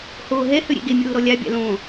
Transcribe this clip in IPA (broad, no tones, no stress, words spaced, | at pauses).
hoːɦɛ høɾʲḛɡemʲoː ɾɔlʲabʲa̰ lõ